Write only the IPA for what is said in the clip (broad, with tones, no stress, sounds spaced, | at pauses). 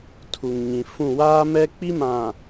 tʰ u˨ ŋ ɲ ĩ˨ f ũ˦˨ w aː˦ m ɛ˦ k͡p i˦ m ã˨